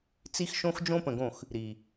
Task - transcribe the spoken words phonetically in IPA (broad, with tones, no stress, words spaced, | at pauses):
t͡si˦xʃõ˦x d͡ʒõ˦pə̃˨ɡõ˦˨x | ɾi˨